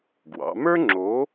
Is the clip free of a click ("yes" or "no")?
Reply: no